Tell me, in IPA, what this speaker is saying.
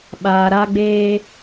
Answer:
ɓaː˨ɾa˧ɡ͡beː˧

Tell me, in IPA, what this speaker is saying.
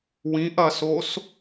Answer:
wĩʔɐsos

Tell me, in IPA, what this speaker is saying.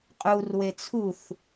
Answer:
qʼurwe t͡sʰuθ

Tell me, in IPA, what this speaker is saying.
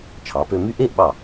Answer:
t͡ʃʰɑ˩˧pø˧my˥˧ ʔe˥˧ʔɓɑ˧˩

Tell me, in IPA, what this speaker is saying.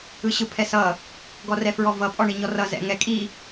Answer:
ɯɕɯpʰɛsʌ | ɡɔrɛfɹɔvʌ pʼɔɳiɲɔrʌ zɛ̰ŋɛ kʼi

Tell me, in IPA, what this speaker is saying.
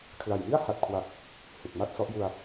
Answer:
kʰla˨˩jmi˥˩a̯ ha˨˩t̚kʰwa˨˩k̚ | hu˨˩k̚ma˥˩t̚ sɔ˦˥ʔju˧a̯

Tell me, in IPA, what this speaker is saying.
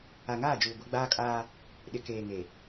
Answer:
a˨ŋaː˦˨d͡ʒuː˨ ɡʷɛ˦ ɡ͡baː˦kʼaː˦ | ɗɪ˨keː˨ ŋe˨

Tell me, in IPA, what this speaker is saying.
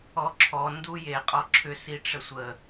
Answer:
ɔǁʰɔ nduje qʼɔǁʰʏs iʈ͡ʂəsʷə

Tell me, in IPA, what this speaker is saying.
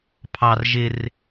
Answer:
pʰɑr ʒɪr

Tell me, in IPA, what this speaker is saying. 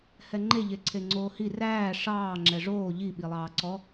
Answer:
hɛŋ͡ǃe ʎeǀʰeŋ͡ǀoːhi ræː ʂɑː ŋ͡ǁɛʐoː ʎi ɓilˠɑːǀɔ

